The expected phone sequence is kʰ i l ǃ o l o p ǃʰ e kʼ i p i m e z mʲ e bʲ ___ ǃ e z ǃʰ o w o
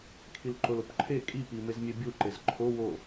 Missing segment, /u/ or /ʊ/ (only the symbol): u